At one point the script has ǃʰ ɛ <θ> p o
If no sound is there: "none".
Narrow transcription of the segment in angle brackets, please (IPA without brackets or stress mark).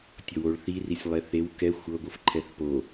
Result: θ